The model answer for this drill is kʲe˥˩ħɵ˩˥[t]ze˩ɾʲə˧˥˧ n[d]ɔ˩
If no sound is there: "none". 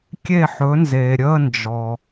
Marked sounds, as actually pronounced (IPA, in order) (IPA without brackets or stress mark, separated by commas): n, d͡ʒ